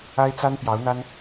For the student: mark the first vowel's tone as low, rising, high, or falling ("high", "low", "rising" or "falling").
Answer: high